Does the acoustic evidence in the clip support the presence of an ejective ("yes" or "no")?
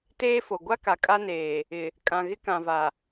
yes